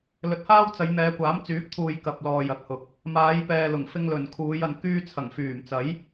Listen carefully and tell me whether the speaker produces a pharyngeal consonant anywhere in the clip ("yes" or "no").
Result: no